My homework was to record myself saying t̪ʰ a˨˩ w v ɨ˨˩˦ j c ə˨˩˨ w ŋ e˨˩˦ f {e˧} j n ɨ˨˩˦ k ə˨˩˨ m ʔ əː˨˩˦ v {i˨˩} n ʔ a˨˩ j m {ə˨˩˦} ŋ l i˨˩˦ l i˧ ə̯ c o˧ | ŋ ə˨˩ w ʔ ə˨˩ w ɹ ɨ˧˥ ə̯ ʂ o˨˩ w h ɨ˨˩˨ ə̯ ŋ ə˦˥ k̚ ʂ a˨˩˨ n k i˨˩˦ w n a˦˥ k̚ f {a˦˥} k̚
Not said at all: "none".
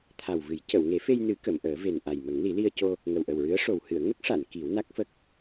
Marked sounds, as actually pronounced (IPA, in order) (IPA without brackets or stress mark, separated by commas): e˧, e˨˩, ə˨˩˦, ə˦˥